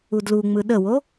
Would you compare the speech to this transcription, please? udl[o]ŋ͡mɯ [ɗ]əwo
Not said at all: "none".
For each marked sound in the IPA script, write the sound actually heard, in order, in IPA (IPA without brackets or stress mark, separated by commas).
u, ɗ